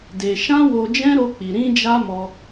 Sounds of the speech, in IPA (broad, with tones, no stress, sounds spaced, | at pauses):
d e˧ ʃ ã˦ w o˧ d͡ʒ ɛ̃˦ ɾ o˦ k͡p i˧ ɾ ĩ˦ d͡ʒ a˦ m ɔ˧